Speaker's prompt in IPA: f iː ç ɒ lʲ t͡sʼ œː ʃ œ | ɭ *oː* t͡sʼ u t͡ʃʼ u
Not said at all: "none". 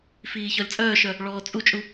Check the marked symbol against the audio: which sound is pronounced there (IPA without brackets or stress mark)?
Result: ɔː